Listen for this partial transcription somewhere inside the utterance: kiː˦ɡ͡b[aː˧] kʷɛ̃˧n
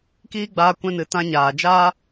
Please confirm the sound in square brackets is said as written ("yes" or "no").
yes